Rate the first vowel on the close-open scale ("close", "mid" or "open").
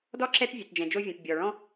mid